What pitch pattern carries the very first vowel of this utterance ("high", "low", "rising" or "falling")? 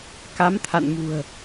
rising